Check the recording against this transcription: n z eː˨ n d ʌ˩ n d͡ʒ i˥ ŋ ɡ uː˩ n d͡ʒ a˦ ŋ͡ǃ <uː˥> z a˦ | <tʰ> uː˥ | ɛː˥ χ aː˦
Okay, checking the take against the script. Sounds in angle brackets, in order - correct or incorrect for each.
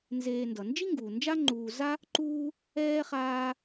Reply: incorrect: uː˨, incorrect: ǃ

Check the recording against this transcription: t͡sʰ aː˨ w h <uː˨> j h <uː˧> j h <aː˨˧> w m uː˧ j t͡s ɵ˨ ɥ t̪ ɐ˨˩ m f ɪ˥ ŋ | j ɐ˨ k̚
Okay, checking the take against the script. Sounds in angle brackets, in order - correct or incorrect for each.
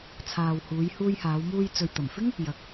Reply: incorrect: uː˨˧, correct, correct

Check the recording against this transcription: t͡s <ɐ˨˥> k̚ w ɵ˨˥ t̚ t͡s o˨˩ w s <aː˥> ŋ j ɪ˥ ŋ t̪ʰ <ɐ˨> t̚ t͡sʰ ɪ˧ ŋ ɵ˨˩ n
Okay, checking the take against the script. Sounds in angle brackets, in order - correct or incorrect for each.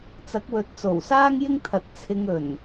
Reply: correct, correct, correct

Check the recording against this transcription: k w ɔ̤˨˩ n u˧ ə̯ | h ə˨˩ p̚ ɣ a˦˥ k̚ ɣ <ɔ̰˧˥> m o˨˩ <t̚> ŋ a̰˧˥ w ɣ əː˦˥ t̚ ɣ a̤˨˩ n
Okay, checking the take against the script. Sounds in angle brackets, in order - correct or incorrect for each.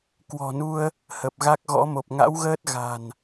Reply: correct, incorrect: p̚

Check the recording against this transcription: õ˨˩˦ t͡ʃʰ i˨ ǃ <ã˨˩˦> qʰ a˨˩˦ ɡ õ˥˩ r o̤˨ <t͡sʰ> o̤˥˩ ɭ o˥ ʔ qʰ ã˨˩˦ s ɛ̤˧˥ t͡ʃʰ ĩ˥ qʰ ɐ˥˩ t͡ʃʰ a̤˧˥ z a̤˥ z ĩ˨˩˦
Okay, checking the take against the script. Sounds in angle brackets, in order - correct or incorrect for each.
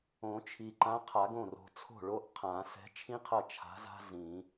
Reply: incorrect: ã˧˥, correct

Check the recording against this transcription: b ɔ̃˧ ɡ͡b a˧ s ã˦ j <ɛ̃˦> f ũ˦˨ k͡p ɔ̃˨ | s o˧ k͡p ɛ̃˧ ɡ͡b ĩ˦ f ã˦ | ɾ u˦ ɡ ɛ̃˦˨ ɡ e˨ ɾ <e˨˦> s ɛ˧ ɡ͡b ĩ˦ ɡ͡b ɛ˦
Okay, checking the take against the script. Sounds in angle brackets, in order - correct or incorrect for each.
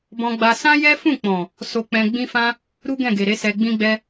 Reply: incorrect: ɛ˦, correct

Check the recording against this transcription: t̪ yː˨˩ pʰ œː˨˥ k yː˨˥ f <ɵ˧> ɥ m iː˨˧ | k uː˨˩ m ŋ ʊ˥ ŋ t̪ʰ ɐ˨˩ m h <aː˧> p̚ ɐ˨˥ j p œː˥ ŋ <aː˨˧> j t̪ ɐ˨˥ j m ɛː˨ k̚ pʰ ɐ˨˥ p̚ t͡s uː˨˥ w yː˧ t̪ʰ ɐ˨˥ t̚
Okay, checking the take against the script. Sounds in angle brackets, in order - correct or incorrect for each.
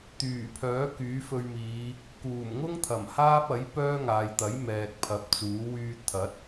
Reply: correct, incorrect: aː˥, incorrect: aː˨

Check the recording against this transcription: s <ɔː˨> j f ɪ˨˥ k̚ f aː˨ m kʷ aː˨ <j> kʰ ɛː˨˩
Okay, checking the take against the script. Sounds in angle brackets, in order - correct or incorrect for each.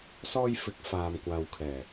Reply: incorrect: ɔː˧, incorrect: w

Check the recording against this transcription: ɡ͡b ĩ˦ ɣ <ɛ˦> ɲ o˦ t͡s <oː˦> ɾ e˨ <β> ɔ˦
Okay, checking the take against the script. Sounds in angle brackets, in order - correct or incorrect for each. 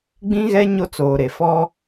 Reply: correct, incorrect: oː˨, incorrect: f

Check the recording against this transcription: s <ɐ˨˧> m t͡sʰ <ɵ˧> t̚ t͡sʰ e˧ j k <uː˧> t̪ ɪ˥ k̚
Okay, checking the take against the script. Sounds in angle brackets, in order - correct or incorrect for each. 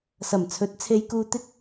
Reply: incorrect: ɐ˨˩, incorrect: ɵ˨˥, correct

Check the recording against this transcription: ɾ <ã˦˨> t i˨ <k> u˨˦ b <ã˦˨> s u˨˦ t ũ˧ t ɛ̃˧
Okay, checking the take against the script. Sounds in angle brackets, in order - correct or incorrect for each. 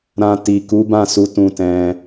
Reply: incorrect: ã˧, correct, correct

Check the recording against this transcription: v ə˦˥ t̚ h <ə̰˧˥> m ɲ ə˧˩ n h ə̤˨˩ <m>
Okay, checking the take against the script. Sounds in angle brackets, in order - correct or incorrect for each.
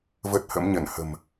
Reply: correct, correct

